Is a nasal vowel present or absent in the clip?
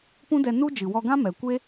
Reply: present